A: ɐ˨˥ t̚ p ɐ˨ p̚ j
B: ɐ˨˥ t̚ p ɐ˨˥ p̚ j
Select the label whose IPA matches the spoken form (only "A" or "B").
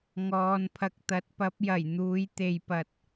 B